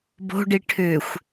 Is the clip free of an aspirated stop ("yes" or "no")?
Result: no